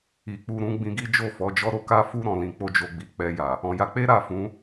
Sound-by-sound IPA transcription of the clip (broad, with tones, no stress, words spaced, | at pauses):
i˨k͡pu˧ɾũ˧ ɡ͡bĩ˧ɡi˦d͡ʒo˦˨fɔ˨˦ d͡ʒɔ˧ɾo˧ ka˦fu˦ ɾɔ̃˧lĩ˧k͡po˦ d͡ʒo˧ɡ͡bi˨k͡pɛ˧ja˨ | ɔ̃˨ja˨˦k͡pe˦ ɾa˦˨fũ˨˦